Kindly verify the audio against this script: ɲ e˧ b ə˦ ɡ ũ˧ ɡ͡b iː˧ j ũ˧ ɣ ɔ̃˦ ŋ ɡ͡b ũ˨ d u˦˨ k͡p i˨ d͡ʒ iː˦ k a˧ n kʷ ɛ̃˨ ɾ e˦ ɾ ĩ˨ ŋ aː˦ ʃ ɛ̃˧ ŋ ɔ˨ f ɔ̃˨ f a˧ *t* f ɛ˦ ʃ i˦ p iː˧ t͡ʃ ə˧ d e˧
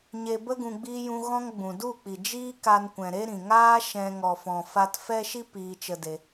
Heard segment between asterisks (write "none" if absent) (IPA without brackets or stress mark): t